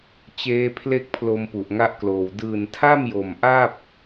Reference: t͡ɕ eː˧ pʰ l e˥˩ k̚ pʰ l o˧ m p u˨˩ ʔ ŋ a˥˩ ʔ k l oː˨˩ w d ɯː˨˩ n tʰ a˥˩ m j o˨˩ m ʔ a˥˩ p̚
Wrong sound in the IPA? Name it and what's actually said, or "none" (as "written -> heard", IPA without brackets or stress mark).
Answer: none